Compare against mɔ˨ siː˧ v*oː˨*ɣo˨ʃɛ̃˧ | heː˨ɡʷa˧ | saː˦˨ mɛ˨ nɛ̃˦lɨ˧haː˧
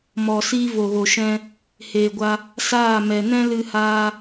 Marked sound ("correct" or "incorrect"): incorrect